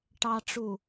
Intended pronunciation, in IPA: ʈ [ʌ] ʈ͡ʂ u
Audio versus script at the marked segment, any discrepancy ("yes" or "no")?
yes